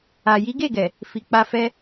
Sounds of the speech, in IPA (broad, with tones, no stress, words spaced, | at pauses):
a˨ ji˨˦ɡe˦˨ ɡɛ˨ | fi˨k͡pa˧fɛ˦